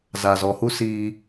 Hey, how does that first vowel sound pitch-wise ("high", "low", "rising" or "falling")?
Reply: low